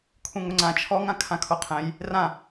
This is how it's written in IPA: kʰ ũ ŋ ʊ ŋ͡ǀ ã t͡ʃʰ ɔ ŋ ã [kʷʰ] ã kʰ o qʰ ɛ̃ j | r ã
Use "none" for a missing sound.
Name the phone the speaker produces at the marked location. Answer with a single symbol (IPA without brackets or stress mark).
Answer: kʰ